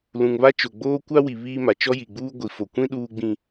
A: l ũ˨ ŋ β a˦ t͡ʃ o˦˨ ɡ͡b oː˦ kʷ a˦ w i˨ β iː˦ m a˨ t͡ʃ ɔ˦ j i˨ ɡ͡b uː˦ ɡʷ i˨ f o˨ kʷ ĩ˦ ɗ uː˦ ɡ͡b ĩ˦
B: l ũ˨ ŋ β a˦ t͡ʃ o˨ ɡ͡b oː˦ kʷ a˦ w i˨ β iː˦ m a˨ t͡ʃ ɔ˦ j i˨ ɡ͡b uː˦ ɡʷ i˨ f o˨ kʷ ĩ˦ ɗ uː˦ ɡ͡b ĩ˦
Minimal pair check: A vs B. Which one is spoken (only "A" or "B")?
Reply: B